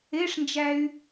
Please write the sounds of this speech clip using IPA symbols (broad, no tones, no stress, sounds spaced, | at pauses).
e ʂ n d͡ʒ æ y̯